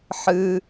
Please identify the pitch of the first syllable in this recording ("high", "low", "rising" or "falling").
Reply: low